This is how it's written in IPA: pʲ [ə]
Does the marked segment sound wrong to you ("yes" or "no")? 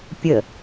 no